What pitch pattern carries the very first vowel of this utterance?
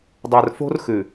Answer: low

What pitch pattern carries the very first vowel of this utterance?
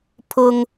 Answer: high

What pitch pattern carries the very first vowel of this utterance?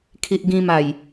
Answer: low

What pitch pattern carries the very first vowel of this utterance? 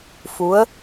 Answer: rising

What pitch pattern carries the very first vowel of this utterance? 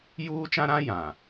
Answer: high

